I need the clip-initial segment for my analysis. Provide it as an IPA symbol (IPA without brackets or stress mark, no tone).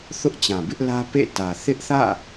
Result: θ